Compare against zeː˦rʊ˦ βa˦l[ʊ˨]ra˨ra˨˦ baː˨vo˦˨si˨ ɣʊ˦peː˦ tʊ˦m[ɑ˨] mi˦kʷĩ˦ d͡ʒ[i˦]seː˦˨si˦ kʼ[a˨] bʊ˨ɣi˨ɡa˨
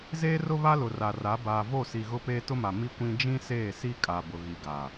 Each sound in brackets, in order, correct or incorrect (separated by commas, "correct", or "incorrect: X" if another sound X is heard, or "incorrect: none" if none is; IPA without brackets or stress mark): correct, incorrect: a˨, incorrect: ĩ˦, correct